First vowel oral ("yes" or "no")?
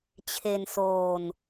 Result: yes